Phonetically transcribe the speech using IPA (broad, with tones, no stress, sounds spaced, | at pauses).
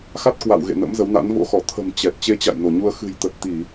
x a˦˥ t̚ k w a̰˧˨ w ɣ ḛ˧˨ n ə̰˧˥ m z ə˨˦ w n a̰˧˥ n v o̰˧˥ x ɔ˧˩ t̪ʰ ə̤˨˩ m t͡ɕ ɛ˨˩ t̚ t͡ɕ e˧ t͡ɕ a̰˧˨ j n o˧˩ ɲ u˧ ə̯ x ɨ̤˨˩ j t̪ ə˨˩ t̚ t̪ i˧˩˨